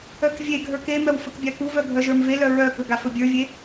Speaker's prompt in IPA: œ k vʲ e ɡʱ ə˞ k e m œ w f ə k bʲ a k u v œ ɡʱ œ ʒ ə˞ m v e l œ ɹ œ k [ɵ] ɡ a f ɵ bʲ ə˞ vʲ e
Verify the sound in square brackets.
correct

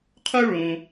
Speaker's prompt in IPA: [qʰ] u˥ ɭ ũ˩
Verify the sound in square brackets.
correct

